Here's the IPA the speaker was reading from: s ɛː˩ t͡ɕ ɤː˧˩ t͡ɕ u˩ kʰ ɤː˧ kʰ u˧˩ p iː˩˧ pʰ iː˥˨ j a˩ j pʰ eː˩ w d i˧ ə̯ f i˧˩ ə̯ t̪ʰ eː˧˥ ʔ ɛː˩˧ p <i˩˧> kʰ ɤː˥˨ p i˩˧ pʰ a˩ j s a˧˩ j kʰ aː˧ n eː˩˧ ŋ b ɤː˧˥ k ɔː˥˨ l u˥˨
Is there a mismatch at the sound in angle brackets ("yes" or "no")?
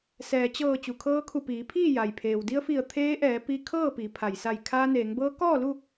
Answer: yes